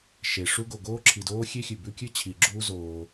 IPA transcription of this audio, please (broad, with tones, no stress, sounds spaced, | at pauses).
ʃ e˩ ʂ u˥ ɡ o˩ ɡ oː˥ ǁʰ i˩ d oː˥ xʲ e˥ xʲ ʉ˩ b ʉ˥ kʲ ɨ˥ t͡ɕʰ i˩ ɡ͡ǁ uː˥ z oː˩